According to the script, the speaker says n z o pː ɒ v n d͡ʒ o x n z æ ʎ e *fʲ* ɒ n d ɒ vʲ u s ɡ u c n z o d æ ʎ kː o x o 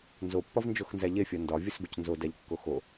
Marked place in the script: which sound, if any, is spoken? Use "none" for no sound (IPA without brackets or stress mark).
fʲ